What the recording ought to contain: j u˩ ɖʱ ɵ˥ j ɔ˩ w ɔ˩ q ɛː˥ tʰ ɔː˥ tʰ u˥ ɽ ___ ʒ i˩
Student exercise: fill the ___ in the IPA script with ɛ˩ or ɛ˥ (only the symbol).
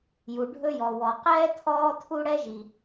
ɛ˥